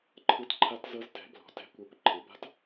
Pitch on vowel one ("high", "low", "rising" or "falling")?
rising